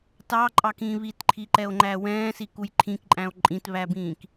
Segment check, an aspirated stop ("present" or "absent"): present